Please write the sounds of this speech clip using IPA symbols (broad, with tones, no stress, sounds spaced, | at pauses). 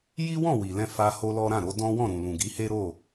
j i˦ w ɔ̃˦˨ w i˨ l ɛ̃˧ f a˧ h o˦ l ɔ˦ ɾ ã˦˨ ɾ o˨˦ d ɔ̃˦ w ɔ̃˦˨ ɾ ũ˨ l ũ˨ ɡ i˨˦ h e˦ ɾ o˦˨